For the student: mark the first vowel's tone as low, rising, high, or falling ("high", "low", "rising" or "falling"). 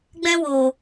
high